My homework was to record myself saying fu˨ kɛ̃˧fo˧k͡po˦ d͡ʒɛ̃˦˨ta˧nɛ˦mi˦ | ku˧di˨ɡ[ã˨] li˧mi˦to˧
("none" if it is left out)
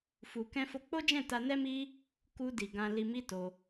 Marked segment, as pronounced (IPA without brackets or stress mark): ã˧